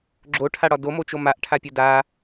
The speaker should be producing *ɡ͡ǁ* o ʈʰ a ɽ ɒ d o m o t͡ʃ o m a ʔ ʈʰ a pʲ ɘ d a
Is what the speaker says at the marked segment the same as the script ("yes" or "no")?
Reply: yes